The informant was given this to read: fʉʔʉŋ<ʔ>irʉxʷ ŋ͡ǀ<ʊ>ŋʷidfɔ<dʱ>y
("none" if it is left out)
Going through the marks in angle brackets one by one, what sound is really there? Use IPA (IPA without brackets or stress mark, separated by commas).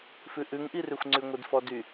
ʔ, ʉ, d